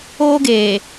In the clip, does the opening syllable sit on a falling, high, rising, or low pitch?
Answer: high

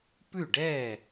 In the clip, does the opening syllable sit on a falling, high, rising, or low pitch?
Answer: falling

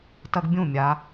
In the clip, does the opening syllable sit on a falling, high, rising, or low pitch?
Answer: high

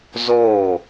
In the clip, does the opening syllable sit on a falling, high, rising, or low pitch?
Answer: falling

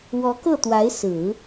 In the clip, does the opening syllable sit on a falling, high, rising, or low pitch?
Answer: rising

